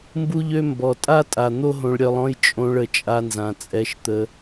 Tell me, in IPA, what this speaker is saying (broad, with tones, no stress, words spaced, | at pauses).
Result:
mbu˦ʎø˦ mbɔ˨ tʼa˦tʼa˨ n̪o˦ɦõ˧ɭ ɾʲœ˧lˠɔ̃˦j t͡ʃʼõ˧ɭə˨ t͡ʃʼa˧nzã˨t͡sʼɛ˧ʃt̪ə˧